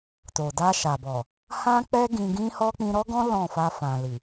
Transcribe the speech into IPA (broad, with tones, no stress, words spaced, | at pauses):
to˨da˧ʃa˨bɔ˨ | hã˦k͡pɛ˦ ɡĩ˧ɡĩ˦hɔ˦ k͡pĩ˧ɾɔ˦ɡɔ̃˦ lɔ̃˦˨fa˧ fã˨li˨